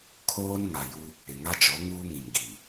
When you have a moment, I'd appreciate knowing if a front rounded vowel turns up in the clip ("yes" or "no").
no